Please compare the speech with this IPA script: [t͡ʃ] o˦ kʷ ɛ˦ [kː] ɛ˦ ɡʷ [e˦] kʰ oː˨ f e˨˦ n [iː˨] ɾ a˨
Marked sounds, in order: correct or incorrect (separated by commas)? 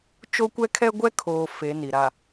correct, incorrect, incorrect, incorrect